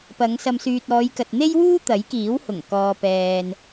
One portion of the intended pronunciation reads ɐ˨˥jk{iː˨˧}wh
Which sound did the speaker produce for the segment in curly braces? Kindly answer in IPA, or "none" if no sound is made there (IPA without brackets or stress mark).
iː˨˥